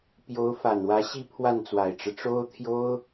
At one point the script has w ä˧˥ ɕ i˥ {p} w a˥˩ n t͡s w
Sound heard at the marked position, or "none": pʰ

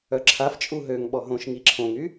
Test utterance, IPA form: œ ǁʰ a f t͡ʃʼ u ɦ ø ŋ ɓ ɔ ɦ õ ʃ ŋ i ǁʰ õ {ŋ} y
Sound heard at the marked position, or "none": ŋ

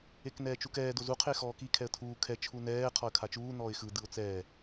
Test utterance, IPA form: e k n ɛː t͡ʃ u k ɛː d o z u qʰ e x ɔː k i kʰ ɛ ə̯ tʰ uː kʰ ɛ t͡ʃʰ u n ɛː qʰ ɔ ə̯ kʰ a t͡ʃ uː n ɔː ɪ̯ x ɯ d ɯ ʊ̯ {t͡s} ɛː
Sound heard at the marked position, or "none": t͡s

